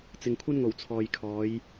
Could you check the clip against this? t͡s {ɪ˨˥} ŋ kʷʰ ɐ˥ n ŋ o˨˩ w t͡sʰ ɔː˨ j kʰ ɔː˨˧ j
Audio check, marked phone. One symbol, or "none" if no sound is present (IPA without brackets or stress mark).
ɪ˨